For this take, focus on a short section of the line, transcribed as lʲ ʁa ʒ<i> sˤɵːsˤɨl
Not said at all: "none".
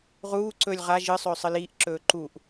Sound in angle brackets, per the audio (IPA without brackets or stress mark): ɨ